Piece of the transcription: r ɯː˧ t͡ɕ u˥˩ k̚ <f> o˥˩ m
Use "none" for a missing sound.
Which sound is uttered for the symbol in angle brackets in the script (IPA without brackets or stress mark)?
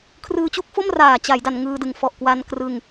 f